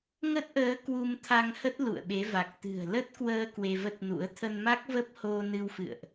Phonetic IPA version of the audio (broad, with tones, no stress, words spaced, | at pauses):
ŋə˦˥t̚ʔəː˨˦ kwu˧mt̪ʰa˧ŋhə˦˥t̚ lṵ˧˨ə̯ɓe˨˦va˨˩k̚ t̪ɨ̤˨˩ə̯lə˦˥t̚kwəː˧ kwe˧və˦˥t̚nṵ˧˥ə̯ t̪ʰə˧nma˦˥k̚və˦˥p̚ ho˧nɨ˧wfɨ̰˧˨ə̯ʔ